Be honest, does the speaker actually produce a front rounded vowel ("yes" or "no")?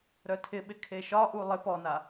yes